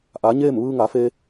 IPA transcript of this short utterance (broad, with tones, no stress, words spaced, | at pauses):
ʔa˩˧ ɲeː˥˨m ʋɯː˧ŋa˩˧fe˧